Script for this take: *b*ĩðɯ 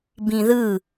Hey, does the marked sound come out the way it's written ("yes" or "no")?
yes